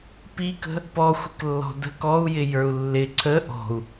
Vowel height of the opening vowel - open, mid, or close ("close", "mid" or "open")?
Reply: close